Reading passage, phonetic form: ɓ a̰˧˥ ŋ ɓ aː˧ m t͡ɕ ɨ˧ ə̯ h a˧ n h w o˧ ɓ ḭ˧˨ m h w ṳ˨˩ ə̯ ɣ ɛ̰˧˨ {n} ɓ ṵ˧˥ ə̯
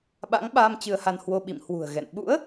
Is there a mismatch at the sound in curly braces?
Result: no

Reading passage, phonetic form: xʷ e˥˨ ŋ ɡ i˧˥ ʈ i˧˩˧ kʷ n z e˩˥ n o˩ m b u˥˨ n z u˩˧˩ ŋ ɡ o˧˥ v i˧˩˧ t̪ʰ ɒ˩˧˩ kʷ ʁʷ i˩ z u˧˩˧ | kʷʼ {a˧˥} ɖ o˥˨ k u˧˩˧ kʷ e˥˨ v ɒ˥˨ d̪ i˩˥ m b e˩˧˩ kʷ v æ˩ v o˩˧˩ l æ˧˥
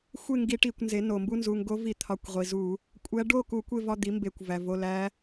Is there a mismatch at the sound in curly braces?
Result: yes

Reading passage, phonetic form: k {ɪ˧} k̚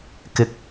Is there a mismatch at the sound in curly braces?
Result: no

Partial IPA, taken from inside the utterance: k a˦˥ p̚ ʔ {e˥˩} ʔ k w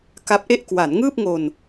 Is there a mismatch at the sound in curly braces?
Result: no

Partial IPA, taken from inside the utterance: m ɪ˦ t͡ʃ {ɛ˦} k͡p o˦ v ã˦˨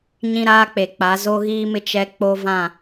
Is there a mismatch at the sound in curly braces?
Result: no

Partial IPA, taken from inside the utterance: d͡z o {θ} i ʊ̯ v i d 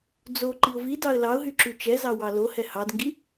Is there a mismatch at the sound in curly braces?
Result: yes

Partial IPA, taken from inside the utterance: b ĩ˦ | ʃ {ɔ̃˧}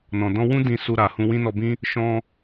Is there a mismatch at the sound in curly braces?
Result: no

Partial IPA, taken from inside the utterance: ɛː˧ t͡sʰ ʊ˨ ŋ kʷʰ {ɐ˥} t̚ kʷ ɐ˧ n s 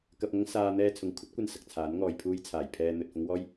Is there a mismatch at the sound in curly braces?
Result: no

